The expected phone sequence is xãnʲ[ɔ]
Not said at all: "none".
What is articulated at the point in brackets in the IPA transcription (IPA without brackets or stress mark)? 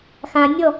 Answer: ɔ